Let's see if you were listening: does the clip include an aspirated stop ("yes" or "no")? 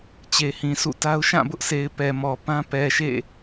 no